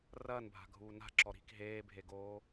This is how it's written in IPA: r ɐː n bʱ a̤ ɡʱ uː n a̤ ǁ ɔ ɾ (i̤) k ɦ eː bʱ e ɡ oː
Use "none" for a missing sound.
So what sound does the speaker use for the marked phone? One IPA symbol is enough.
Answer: i̤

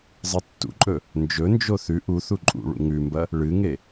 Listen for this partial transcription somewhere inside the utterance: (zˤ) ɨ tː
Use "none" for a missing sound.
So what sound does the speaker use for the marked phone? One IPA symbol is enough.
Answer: zˤ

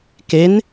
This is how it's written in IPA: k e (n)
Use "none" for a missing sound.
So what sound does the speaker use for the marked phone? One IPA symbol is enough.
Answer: n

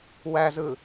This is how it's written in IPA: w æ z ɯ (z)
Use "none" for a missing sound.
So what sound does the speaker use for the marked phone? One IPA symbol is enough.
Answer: none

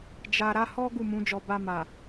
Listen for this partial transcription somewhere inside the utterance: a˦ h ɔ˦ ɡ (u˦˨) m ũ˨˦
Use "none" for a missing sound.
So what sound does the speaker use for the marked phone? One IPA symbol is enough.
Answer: u˦˨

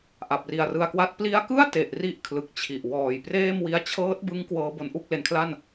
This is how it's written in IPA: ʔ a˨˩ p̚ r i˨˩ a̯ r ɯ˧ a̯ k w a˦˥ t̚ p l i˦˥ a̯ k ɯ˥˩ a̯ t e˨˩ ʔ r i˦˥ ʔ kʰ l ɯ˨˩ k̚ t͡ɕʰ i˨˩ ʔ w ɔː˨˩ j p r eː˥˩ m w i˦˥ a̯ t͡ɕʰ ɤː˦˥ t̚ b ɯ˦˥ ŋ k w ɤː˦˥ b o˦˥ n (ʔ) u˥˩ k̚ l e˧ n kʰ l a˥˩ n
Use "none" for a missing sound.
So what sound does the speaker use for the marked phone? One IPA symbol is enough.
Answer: ʔ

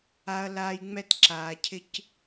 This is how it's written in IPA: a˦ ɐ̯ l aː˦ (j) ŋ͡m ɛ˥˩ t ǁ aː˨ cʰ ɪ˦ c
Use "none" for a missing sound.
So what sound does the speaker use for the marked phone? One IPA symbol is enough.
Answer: j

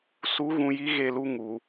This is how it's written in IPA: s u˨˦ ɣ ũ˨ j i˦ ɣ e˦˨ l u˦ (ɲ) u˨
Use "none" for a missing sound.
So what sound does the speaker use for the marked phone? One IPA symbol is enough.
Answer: ŋ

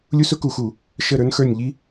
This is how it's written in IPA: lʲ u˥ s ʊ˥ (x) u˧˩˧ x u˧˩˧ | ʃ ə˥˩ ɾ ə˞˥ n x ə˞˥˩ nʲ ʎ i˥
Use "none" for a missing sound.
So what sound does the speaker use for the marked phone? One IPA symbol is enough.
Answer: k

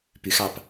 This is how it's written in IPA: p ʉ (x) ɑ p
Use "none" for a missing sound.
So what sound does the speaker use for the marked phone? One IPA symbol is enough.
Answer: x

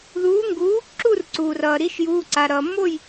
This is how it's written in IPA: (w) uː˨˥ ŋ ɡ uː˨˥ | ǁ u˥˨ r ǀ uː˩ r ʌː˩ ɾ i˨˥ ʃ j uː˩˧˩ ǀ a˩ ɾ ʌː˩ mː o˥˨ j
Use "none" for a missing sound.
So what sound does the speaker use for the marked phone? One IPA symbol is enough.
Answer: ð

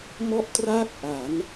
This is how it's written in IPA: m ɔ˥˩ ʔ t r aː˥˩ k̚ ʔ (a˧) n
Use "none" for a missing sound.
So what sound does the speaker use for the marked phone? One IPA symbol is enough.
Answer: a˩˦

